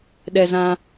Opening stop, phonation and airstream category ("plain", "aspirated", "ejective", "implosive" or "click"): implosive